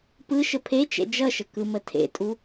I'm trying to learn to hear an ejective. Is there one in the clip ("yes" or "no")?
yes